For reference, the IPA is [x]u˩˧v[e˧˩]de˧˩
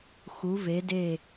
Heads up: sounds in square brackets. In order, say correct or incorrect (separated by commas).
correct, incorrect